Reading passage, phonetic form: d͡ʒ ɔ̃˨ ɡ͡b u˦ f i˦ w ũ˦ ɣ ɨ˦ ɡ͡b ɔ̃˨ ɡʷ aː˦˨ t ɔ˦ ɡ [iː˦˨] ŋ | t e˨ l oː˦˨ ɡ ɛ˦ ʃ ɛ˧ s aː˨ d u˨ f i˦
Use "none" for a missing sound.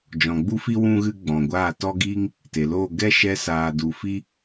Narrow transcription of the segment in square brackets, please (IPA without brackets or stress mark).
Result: iː˦